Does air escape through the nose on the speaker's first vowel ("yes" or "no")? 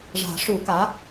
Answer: no